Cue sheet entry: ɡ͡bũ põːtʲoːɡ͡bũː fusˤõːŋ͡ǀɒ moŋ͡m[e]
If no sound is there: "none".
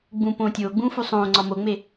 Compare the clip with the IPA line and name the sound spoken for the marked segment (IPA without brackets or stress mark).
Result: e